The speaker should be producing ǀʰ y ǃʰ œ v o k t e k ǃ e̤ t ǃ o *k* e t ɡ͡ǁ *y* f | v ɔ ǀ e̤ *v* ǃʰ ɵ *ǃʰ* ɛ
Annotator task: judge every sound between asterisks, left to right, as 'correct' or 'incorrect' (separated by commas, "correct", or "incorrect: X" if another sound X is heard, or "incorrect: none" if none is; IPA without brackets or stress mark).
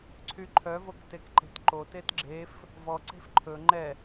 incorrect: t, incorrect: e, incorrect: f, incorrect: ŋ͡ǃ